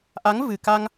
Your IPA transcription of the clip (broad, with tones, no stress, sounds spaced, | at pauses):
ʔ a˧˥ ŋ v ɨ˨˩ k a˧ ŋ